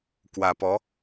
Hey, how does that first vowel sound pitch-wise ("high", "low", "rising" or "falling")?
low